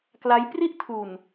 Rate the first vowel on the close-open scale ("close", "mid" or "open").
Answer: open